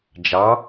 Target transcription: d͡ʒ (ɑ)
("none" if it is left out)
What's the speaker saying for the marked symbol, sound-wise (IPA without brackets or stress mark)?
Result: ɑ